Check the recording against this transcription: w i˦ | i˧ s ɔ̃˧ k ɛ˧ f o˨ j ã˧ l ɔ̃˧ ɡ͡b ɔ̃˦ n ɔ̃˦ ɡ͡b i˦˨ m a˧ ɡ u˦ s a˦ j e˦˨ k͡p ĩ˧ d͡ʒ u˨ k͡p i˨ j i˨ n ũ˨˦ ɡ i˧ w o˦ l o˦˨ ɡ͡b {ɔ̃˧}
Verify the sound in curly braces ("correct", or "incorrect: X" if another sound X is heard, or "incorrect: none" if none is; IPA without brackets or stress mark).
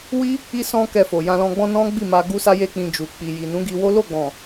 incorrect: ɔ̃˨